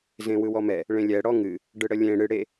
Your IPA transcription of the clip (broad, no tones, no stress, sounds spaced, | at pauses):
z ẽ w ɯ w ɔ m ɛ | ɭ ẽ lʲ ɛ ɽ ɔ ŋ ɨ | ɖ ɯ ɽ ə lʲ ẽ ɽ ɨ ɽ e